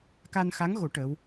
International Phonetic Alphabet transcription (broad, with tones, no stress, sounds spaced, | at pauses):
k a˧ n x a˧˥ ŋ ɣ o˨˩˦ ʈ ə˧˥ w